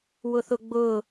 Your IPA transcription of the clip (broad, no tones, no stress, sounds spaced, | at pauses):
w ʊ θ ʊ ɡ͡b ʊ